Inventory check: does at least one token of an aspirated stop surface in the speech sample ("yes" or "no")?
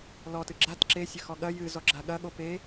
no